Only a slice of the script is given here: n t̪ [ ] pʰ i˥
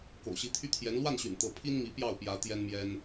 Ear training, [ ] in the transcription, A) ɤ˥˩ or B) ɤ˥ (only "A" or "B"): A